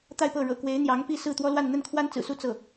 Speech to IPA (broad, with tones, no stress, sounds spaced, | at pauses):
t̪ a˥˧ ɪ̯ p ɤ˥˩ ɻ ɤ̰˨˩ k w e˧˥ ɪ̯ n̪ j ɑ˧˥ ŋ p i˥˧ s ɹ̩˥˩ t̪ w ɔ˥ l w a˥˧ n n̪ ə˥˩ n kʰ w a˥ n t͡s ɹ̩˨˩ s u˥˧ t͡s ɤ˥˩